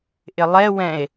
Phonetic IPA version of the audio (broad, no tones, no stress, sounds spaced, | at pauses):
ʔ ɪ lˠ ɛ w ɛ̃ e̯